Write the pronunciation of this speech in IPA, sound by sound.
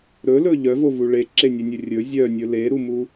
ɾ ɵ l ɵ ʎ œ v o v u ɭ e ǁ e nʲ e nʲ ɵ rʲ ɵ zʲ œ nʲ ɵ l e ɾ u m u

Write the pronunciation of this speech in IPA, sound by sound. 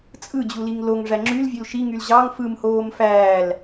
t͡sʼ ɯ d͡ʑ u l i ŋ l o ŋ ʐ æ ŋ͡ǁ y l vʲ ø l ʃ i ŋ y l ʑ ɑ ŋ f ɯ m h oː m f æː l

